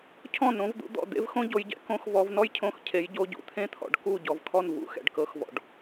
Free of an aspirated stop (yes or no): no